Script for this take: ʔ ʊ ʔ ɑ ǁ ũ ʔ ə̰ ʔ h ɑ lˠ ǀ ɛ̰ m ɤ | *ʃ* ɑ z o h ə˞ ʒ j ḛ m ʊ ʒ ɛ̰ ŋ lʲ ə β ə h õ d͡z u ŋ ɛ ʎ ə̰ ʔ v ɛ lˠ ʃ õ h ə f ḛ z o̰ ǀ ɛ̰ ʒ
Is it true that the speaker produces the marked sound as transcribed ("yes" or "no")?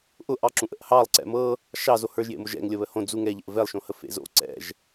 yes